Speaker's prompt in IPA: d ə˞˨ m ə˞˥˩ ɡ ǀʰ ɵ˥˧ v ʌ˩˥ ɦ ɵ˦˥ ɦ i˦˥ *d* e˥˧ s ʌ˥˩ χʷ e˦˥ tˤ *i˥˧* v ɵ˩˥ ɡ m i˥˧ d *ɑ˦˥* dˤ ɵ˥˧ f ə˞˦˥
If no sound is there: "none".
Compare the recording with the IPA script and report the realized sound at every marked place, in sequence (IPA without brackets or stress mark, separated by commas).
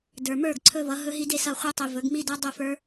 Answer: d, i˨, ʌ˦˥